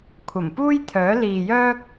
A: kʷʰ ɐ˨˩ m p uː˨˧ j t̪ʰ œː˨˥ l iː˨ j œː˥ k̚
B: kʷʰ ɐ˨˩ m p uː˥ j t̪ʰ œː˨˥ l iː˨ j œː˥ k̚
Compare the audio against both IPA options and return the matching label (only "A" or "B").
B